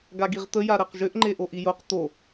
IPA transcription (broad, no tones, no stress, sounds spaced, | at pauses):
ɡ a ɡ i ʁ t̪ ə j a ɾ ɛ q ʒ ʏ ʔ ŋ͡ǃ e ʔ o ʔ i j o q t̪ o